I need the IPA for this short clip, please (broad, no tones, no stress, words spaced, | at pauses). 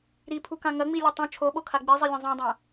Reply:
ɾipʰukã ŋɐŋ͡milʲu tˤõ t͡ʃʰoɓokʰa ɡ͡bizˤilʲɐ̃ zˤũdˤɐ̃